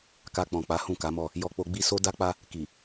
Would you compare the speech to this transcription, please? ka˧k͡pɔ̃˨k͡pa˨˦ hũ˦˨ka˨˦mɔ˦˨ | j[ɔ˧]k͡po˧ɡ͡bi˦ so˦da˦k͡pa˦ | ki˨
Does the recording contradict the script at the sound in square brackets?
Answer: no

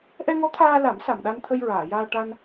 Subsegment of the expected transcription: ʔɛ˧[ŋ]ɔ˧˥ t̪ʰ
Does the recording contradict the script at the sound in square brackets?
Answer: no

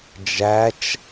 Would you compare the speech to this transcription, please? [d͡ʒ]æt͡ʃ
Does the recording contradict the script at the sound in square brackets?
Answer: no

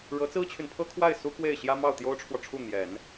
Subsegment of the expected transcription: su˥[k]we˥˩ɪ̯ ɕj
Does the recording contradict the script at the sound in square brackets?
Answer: no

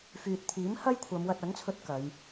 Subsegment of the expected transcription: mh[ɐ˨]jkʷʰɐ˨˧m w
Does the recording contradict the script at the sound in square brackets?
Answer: yes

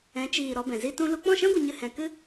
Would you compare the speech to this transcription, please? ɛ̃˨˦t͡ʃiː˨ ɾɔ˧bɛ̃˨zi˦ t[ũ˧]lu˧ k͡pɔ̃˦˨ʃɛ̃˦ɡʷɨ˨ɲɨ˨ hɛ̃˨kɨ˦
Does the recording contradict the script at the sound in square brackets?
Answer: no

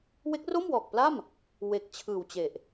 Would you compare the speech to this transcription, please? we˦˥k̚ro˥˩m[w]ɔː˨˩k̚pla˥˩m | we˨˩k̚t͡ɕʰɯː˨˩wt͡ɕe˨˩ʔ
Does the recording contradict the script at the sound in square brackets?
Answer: no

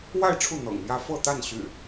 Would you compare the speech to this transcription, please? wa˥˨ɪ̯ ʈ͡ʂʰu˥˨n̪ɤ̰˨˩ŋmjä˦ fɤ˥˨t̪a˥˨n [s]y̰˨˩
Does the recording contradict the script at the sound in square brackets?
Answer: yes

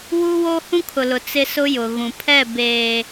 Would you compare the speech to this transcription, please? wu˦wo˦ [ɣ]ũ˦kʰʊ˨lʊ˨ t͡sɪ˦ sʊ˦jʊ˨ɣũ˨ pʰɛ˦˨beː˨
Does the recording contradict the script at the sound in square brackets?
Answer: yes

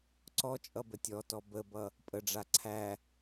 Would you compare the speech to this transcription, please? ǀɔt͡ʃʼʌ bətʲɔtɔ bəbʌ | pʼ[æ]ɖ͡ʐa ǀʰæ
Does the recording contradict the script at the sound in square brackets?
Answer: yes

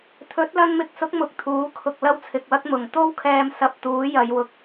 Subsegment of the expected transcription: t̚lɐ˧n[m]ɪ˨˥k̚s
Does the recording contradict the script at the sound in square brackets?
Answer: no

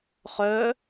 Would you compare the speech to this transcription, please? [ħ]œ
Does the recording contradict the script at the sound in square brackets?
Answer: yes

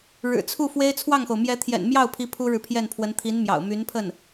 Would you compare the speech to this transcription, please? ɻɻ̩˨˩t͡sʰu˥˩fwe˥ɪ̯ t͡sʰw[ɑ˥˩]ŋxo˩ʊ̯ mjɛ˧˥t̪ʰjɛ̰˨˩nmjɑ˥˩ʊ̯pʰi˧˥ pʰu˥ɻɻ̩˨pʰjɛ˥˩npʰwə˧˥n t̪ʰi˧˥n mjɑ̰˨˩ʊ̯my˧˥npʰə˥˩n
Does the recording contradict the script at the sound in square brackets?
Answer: no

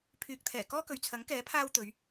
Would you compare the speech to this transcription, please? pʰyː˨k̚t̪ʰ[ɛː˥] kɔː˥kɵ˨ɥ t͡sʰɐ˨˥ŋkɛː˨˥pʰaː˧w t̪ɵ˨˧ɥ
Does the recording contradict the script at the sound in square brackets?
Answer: yes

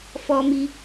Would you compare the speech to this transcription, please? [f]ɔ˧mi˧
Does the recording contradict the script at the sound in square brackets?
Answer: no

